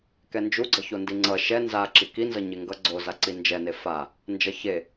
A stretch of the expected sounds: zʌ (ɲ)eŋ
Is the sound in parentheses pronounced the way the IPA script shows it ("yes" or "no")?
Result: yes